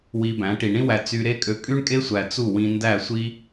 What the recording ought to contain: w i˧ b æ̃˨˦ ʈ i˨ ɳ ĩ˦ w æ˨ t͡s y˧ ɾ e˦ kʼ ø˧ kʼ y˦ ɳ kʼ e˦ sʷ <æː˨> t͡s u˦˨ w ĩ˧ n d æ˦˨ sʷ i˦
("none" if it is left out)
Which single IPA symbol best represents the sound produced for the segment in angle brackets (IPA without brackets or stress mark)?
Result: æ˨